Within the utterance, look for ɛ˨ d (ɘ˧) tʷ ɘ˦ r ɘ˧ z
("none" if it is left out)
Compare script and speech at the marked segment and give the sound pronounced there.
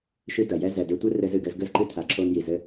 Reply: ɘ˧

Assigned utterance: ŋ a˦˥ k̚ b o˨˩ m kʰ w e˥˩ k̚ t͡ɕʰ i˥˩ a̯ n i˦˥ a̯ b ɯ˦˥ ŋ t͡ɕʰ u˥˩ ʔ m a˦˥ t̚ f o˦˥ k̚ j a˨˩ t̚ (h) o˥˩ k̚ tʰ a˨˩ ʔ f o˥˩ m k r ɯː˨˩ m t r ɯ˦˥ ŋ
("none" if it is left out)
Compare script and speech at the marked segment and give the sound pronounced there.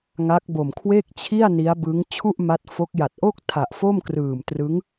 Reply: ʔ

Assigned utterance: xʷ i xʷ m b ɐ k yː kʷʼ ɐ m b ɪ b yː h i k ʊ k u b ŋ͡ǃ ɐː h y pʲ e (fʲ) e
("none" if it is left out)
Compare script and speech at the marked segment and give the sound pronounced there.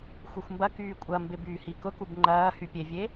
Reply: vʲ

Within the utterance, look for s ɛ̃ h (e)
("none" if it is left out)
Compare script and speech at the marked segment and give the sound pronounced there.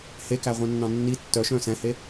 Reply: e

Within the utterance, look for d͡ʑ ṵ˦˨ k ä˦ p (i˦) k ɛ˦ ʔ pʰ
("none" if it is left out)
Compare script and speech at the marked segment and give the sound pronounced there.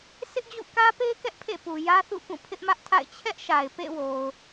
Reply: e˦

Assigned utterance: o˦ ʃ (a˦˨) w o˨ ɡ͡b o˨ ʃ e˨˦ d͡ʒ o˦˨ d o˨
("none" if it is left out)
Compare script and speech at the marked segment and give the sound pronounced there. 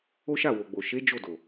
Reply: a˦˨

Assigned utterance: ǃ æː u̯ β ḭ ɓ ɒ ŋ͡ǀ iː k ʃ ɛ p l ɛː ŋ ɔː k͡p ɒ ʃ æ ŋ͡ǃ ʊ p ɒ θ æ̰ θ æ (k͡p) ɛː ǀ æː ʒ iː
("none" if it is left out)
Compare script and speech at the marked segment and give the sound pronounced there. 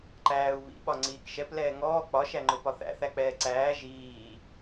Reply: k͡p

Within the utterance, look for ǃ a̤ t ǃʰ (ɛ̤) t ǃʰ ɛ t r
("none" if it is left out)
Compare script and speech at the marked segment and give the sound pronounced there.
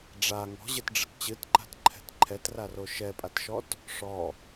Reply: ɛ̤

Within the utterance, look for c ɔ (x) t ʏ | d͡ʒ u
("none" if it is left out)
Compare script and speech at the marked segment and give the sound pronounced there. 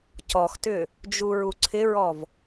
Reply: x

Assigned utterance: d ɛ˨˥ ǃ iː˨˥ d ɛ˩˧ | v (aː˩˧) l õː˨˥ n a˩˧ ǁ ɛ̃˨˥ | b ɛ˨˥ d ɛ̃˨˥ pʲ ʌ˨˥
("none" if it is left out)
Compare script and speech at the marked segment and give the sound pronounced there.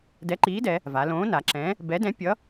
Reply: a˩˧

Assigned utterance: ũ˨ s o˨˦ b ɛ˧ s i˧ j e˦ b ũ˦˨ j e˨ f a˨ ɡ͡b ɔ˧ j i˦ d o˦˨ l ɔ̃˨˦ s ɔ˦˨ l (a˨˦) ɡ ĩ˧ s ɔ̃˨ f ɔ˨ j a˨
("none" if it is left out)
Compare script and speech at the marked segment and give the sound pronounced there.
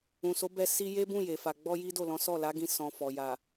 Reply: a˨˦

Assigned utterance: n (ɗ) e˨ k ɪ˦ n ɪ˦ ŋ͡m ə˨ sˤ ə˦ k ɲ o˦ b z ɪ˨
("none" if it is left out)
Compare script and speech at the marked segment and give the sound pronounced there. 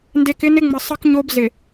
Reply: d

